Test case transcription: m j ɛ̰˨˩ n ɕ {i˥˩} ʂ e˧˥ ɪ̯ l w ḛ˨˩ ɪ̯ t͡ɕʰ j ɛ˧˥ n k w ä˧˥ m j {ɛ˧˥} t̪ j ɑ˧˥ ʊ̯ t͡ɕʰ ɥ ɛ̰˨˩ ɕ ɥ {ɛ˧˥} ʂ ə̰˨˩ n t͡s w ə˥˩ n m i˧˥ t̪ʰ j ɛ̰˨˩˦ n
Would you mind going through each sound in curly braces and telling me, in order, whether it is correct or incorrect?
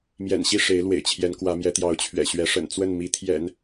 correct, correct, correct

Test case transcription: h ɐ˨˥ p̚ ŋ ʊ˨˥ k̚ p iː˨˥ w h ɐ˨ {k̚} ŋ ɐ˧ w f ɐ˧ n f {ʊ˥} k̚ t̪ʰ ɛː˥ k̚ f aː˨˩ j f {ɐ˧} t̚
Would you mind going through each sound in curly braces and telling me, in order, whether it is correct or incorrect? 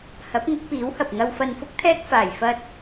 incorrect: p̚, correct, correct

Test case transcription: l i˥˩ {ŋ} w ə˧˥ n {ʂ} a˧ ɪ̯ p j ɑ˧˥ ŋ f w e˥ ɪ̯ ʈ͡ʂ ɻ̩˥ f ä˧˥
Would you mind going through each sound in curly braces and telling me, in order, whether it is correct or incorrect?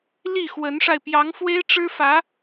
incorrect: x, correct

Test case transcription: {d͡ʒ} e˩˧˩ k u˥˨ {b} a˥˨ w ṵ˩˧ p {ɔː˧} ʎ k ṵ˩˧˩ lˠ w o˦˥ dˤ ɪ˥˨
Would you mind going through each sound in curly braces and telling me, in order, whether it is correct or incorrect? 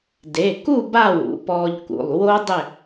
incorrect: d, correct, correct

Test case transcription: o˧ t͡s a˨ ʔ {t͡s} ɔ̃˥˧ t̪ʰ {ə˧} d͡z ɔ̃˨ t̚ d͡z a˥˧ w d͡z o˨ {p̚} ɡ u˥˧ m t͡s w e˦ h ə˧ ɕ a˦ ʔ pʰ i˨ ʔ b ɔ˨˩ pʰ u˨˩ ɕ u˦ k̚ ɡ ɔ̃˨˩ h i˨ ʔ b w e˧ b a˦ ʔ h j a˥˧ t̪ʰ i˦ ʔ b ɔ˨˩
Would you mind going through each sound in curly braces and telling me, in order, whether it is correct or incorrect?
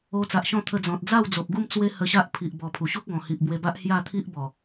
incorrect: ɕ, correct, correct

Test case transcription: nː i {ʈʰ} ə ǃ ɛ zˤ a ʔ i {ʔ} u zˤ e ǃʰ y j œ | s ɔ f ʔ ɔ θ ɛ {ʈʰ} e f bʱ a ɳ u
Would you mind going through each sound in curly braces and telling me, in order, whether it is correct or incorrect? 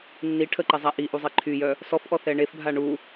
correct, correct, incorrect: ɳ

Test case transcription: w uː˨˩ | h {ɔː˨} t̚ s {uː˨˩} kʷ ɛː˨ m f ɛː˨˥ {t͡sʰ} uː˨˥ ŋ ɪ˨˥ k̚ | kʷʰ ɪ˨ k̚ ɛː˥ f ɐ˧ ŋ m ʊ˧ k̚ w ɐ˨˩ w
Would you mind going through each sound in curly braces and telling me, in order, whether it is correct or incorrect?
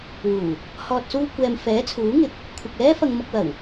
correct, incorrect: uː˧, correct

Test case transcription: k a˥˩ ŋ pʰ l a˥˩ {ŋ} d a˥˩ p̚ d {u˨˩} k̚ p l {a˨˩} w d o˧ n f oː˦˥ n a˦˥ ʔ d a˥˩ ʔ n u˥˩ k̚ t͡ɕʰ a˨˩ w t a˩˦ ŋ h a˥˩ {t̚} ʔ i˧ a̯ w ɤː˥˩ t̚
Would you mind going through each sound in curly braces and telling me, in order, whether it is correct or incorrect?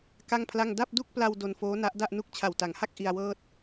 correct, incorrect: u˥˩, incorrect: a˧, incorrect: k̚

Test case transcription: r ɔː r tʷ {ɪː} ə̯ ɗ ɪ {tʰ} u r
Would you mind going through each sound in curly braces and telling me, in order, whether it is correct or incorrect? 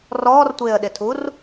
correct, correct

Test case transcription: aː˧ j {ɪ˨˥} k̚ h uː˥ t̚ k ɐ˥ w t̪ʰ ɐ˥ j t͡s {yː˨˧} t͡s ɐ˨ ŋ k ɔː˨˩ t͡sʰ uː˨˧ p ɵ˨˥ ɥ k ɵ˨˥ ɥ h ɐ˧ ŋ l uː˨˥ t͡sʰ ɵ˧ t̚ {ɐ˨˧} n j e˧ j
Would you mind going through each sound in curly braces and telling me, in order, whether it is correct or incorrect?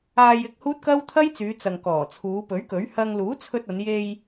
incorrect: ɪ˧, correct, correct

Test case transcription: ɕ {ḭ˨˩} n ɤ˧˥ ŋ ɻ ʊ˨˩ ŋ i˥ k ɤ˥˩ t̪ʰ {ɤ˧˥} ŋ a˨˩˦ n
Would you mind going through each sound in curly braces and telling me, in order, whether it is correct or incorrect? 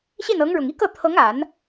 incorrect: i˥˩, correct

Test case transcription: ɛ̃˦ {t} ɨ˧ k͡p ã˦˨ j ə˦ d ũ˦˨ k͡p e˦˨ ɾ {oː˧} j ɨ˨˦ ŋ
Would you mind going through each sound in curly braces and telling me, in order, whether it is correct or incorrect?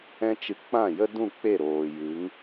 incorrect: t͡ʃ, incorrect: oː˨

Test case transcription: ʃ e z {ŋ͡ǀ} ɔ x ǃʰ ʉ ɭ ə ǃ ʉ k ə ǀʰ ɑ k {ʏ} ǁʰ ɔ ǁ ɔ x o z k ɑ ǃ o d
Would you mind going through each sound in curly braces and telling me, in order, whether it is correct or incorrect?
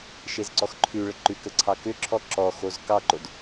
incorrect: ǀ, correct

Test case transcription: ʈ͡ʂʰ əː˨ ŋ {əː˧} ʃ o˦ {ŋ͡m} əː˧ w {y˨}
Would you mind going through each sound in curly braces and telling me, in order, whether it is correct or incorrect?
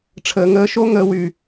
correct, incorrect: ŋ, correct

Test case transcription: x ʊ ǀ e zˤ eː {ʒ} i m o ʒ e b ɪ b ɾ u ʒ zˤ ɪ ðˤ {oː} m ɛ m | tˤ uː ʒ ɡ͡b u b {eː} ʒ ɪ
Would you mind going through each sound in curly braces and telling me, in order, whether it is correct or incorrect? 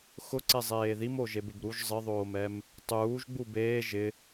incorrect: ð, correct, correct

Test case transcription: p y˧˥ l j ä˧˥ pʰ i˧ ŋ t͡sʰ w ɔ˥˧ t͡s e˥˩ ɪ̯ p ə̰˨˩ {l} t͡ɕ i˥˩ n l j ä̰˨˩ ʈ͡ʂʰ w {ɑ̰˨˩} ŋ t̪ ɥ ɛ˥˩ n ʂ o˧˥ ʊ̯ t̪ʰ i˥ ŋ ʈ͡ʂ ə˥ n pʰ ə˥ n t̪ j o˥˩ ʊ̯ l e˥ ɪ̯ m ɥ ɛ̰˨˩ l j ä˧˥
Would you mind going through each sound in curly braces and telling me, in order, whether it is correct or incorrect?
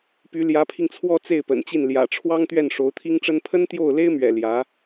incorrect: n, incorrect: ɑ˥

